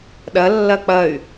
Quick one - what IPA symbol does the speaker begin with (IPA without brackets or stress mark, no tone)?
ɗ